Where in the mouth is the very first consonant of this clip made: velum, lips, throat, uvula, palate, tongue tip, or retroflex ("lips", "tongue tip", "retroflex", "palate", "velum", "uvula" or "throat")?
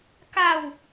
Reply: velum